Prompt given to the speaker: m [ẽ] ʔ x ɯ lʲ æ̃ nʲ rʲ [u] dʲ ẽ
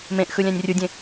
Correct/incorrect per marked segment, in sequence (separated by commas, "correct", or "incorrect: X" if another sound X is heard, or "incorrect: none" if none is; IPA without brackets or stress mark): correct, correct